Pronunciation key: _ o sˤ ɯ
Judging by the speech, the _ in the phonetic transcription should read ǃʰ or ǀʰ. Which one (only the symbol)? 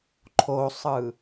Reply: ǃʰ